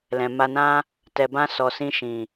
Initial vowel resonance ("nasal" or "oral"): nasal